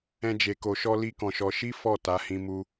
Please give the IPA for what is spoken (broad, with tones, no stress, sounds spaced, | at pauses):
ɛ̃˦ d͡ʒ e˧ k o˧ ʃ ɔ˦ l i˦ k ɔ̃˧ ʃ ɔ˧ ʃ i˦ f ɔ˦˨ t a˧ h ĩ˧ m u˦